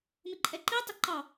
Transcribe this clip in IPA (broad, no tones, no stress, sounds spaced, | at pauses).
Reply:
m ɪ ǃʼ ɛ ǃ i tˤ ɪ ǃ ɑ